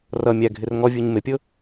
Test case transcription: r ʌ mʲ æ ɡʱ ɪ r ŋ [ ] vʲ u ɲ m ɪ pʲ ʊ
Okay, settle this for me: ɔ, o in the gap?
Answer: ɔ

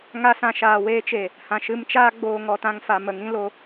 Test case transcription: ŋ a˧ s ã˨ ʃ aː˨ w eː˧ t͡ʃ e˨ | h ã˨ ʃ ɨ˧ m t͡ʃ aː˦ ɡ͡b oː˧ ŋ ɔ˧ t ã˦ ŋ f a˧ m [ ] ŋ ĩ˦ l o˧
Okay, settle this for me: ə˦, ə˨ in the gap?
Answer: ə˨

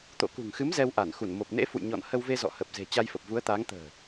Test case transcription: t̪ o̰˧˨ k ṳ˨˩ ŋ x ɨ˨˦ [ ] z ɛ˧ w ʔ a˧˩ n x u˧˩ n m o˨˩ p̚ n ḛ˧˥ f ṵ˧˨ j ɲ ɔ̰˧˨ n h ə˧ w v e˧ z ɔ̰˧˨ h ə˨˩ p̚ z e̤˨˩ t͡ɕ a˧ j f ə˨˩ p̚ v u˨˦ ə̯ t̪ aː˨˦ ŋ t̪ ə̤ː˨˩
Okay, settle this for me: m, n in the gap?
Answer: m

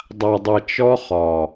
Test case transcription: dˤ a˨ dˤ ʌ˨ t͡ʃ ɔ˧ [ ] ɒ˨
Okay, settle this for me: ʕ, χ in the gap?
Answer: χ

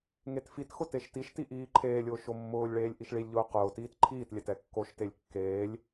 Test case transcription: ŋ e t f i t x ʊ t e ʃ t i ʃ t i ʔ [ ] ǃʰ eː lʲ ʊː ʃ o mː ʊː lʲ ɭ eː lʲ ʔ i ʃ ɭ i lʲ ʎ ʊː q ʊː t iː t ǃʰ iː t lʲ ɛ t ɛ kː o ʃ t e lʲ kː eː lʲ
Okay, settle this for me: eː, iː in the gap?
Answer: iː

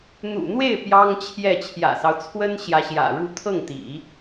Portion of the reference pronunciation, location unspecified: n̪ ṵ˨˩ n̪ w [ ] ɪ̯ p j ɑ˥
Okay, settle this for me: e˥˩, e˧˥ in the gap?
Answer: e˥˩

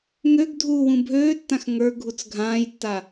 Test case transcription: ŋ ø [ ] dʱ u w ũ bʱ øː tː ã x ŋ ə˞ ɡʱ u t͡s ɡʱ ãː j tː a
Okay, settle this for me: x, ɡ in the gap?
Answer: ɡ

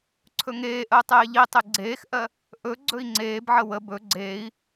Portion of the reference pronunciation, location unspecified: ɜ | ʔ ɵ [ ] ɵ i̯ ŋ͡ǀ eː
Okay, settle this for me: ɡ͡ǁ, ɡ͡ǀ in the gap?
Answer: ɡ͡ǀ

